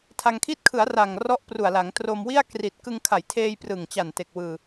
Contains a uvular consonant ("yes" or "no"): no